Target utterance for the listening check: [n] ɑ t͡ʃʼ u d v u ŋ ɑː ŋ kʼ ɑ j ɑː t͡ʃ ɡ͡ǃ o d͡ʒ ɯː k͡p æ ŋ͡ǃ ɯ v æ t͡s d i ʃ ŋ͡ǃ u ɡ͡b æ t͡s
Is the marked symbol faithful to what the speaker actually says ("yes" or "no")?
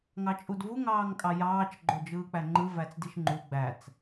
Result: no